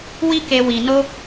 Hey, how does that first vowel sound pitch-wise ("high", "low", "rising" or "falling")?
high